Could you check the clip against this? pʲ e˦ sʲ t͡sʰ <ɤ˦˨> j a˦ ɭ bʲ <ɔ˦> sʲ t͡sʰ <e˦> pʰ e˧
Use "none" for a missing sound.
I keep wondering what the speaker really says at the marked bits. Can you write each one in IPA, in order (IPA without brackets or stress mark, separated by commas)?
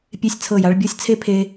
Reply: ɤ˦˨, ɔ˦, e˦